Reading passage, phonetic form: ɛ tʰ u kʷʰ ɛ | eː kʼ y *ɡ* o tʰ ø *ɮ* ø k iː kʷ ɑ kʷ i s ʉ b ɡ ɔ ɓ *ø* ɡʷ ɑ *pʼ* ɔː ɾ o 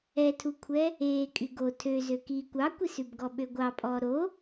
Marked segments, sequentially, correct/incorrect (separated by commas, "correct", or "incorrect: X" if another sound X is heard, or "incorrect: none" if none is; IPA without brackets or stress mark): correct, incorrect: z, correct, correct